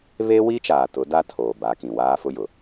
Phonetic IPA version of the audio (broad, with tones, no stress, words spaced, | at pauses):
βe˦wi˦t͡ʃaː˨ tʊ˨˦da˦ tʰoː˨ba˨˦kĩ˨ waː˦fʊ˦jʊ˨